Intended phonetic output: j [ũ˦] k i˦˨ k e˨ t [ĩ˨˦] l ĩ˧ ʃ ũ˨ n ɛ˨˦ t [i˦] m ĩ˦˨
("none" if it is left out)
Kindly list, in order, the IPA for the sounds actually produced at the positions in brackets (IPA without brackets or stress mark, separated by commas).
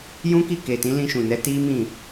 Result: ũ˦, ĩ˨˦, i˦